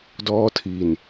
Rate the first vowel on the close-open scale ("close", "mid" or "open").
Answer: mid